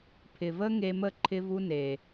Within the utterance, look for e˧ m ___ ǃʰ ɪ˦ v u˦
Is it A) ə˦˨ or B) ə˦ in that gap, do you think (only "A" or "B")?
A